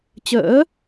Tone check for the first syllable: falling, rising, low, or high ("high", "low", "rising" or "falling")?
rising